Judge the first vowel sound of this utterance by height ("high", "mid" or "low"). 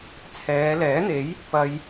mid